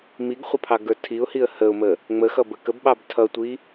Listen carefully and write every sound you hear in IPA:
miɡχʷə pʰɑɡə˞tʰiʊ̯hiə̯ həʊ̯mə | ŋ͡məxʌ bəkəbɓɑb tʰʌtʷi

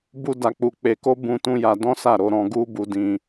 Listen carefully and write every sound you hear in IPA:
bu˦da˧k͡pu˧ k͡pe˧ko˦ bũ˦tũ˦ja˧ dɔ̃˦sa˦˨ɾo˧ ɾɔ̃˧ ɡu˦bu˧dĩ˧

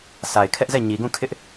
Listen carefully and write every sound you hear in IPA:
sa˨ɪ̯kʰɛ˦ʔzɛ˦˨ ɲi˨ɡũ˦˨kʰɪ˦ʔ

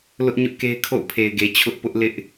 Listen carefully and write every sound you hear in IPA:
lʊ˦ʔ ɲʊ˦ʔke˦ɪ̯ kʰo̰˦˨ʊ̯pʰe˨ɪ̯ɡe˨ t͡ɕʰʊ˦ʔpʊ˦ʔlɪ˦ʔ

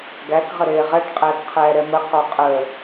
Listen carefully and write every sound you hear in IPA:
ɡæk ʁəɾeːʁɛʈ qʼɛːkqʰɛːɾɛmə qɔqʼə

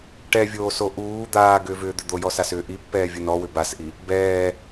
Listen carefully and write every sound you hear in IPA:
ʈɛvʲoːso ʔuː d̪aːɡʏːvʏːd̪ʏ d̪ojɔsasʏː ʔipːɛːvʲu nɔwʏ basʔi | bɛː

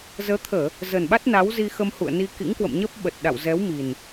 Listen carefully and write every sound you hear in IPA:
zəː˨˦t̪ʰəː˧˩˨ | zə˨˩nɓa˦˥t̚ na˨˦wzi˧ xə˧mhṵ˧˨ə̯ni˧ kḭ˧˥ŋkwə̰˧˨mɲəː˦˥p̚ ɓə˨˩t̚ɗa̰˧˨wzɛ˨˦wmi˨˩n

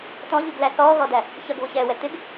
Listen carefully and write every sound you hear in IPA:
tɔ̃ʎuɡlæ θɔːɣɔdæ | çʌɡβʊçɛːwɛ t̪ɪɡ

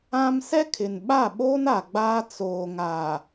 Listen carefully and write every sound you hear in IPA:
ã˦m sɛ˦kʰɪ˨nɓa˦˨ɓoː˦n a˨ɡ͡baː˦ t͡soː˨ŋaː˨

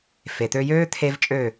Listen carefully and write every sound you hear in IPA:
fe˩t̪ø˧jøː˥ t̪ʰe˥vt͡ʃʼø˥˩

